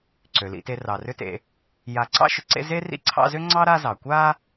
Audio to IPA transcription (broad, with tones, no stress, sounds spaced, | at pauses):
ǀ ø˩ l ḭ˨ t e˨ r ɑ˩ r ʏ˦ t ḛ˨ | j a˨ ǀ ɑ̰˥ ʃ ʏ˨ ǀ ḛ˦ z e˥ r ḭ˦ ǀʰ ɑ̰˦ z ʏ˥ ŋ͡ǀ ɑ˥ ɾ a˦ z ɑ˩ kʷ a˦